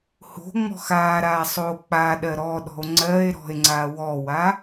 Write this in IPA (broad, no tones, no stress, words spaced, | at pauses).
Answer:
ho̤ŋ͡mɔ̤x aɾa sˤok͡paɗɜ ɾɔɗɔ̤o̯ ŋ͡ǀɜe̯ ɾɔ̤e̯ ŋ͡ǀawɔwa